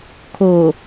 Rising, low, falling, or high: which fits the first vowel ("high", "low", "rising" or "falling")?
low